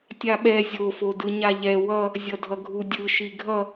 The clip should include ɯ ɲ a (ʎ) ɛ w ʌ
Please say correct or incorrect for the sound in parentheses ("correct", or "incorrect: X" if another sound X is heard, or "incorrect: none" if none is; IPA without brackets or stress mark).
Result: correct